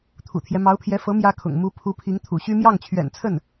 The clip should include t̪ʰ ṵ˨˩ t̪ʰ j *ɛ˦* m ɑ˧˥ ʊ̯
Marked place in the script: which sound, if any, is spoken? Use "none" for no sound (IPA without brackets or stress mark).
ɛ˦